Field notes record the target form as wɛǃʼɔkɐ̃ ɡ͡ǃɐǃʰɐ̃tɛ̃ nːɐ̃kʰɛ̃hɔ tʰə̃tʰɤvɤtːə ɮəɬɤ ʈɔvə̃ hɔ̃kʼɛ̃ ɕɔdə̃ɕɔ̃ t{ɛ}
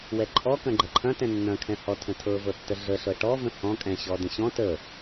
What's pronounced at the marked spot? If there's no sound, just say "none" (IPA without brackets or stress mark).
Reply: ə